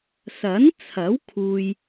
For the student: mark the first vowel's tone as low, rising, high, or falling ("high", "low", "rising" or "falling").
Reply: rising